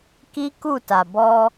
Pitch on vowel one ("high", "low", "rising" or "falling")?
high